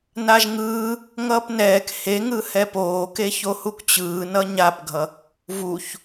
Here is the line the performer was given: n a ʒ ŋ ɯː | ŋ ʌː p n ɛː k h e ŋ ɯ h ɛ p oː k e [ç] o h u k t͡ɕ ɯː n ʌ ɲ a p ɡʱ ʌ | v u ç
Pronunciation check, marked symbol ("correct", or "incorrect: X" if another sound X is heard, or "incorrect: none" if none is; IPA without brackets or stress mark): correct